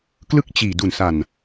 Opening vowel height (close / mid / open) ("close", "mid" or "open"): close